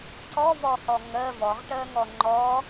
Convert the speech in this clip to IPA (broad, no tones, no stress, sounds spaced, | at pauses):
ǀ ɔ v ɔ h ɔ ŋ ɜ v ɔ ʁ ʈ ɜ ŋ ɔ ŋ͡ǃ ɔ